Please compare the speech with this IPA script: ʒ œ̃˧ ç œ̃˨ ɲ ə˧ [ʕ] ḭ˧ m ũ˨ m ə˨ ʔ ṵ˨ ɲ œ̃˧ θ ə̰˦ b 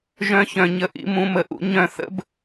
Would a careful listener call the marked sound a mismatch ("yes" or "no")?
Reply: yes